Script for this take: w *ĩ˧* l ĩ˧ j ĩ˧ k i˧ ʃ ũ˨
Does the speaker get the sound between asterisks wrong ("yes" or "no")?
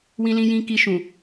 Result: no